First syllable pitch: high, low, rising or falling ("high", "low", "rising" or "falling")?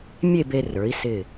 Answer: falling